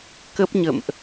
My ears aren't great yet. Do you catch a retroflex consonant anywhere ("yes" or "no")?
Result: no